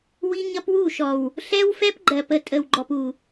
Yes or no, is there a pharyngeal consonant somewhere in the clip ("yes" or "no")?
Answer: no